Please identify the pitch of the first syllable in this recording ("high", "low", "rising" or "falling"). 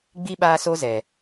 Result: high